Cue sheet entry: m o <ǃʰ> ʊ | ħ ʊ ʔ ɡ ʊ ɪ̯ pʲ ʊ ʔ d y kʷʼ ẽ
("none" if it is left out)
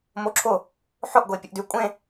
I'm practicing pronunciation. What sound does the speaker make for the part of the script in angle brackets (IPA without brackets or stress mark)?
ǁʰ